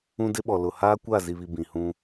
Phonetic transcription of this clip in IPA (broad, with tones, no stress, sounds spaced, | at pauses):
ũ˦ d ɪ˦ ɓ ɔ˨ l ʊ˨ h aː˦ kʷ a˦˨ z i˨ β i˨ b ĩ˨ h ũ˦